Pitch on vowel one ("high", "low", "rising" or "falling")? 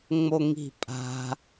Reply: high